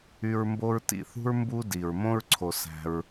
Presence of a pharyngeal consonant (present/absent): absent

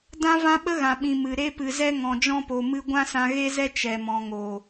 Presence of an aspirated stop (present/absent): absent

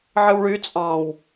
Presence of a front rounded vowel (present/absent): present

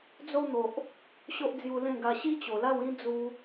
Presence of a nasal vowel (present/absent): present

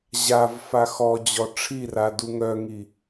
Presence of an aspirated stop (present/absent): present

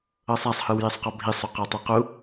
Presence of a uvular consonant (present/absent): present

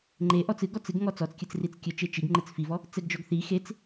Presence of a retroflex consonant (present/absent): absent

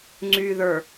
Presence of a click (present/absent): present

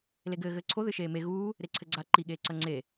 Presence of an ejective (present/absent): absent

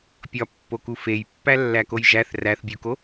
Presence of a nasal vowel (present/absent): absent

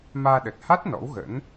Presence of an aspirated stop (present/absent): absent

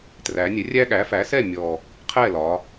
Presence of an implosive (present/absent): present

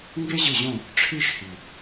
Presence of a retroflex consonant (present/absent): present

